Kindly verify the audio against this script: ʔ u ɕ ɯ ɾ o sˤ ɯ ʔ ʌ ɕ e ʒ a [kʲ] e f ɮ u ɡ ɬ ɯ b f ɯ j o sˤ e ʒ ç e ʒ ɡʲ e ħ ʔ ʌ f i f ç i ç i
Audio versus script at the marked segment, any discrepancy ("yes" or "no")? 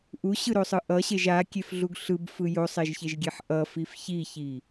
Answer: no